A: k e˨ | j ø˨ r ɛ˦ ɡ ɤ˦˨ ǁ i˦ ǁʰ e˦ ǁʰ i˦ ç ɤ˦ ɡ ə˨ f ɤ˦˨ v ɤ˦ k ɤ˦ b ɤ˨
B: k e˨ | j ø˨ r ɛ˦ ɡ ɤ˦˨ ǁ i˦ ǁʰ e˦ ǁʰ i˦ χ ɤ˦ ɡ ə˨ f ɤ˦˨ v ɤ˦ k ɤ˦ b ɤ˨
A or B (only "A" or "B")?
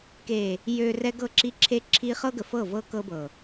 B